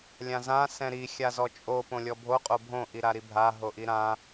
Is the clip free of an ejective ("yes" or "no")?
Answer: no